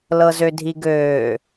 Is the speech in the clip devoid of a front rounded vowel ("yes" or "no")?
no